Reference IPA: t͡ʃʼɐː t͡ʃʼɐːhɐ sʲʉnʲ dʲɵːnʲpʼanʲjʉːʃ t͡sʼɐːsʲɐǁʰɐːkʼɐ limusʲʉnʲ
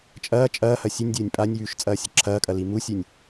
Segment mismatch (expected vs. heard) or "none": none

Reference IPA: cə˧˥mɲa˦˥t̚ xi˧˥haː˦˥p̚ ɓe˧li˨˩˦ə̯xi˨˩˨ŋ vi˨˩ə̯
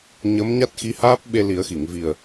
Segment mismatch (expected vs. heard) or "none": c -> ɲ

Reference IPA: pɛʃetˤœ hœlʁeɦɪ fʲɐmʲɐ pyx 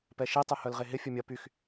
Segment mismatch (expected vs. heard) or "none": none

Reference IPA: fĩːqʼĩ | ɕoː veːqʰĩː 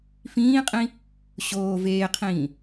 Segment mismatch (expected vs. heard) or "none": none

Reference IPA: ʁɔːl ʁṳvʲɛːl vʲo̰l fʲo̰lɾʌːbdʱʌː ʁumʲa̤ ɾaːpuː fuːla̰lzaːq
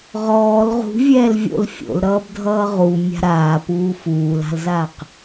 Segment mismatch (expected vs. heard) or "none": a̰ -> a̤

